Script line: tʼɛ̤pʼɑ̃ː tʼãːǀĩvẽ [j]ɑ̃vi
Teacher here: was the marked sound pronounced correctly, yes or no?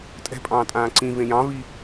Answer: yes